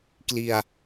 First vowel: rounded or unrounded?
unrounded